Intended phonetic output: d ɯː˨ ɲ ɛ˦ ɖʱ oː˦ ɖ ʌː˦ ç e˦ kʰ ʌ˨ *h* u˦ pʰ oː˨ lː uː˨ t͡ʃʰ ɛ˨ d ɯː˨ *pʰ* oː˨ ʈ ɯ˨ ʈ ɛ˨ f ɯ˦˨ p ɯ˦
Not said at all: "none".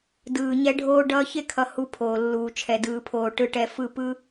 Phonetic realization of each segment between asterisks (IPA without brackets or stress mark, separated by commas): h, pʰ